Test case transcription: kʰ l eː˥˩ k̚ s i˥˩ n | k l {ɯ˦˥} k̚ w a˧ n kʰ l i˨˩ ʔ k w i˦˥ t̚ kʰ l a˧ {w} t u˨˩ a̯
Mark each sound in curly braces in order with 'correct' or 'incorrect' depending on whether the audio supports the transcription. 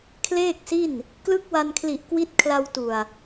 correct, correct

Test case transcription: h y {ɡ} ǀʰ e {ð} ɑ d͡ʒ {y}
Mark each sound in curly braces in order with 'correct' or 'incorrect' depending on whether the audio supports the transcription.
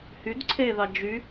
incorrect: d, correct, correct

